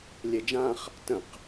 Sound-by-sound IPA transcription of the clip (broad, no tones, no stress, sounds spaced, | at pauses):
lʲ e d͡ʒ ã χ | t ə̃ q